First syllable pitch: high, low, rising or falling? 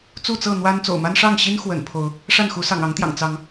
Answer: falling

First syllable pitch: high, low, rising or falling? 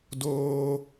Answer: high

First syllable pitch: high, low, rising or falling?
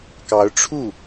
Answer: rising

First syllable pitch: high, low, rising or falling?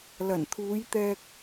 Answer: low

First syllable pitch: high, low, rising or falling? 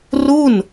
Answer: falling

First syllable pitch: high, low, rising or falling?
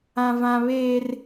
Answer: high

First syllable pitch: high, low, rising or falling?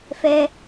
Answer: high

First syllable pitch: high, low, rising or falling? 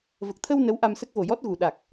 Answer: low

